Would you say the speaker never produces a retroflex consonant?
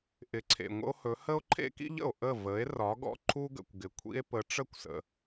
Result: no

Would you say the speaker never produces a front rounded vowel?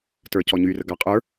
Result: no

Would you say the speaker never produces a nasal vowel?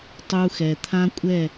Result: no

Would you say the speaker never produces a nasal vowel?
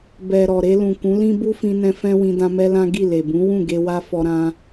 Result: no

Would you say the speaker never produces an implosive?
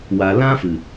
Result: yes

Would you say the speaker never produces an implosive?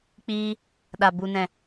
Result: no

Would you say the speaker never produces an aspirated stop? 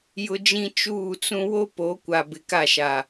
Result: yes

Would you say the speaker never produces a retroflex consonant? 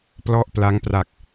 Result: yes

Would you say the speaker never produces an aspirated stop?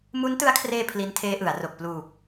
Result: no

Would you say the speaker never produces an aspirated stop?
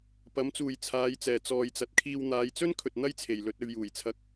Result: no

